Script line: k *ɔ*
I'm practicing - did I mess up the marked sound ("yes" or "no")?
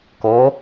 yes